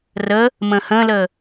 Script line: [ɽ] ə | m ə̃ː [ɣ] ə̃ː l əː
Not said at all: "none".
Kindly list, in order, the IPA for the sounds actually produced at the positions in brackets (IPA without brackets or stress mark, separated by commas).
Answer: r, h